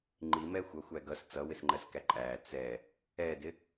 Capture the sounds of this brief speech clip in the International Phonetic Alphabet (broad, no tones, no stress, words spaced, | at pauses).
ŋ͡ǃimɛ xʷʌxʷæ ɡʌs t͡sʌwɪsŋ͡ǃɜskæ ǃʼæ t͡sɛ | ɛdɪ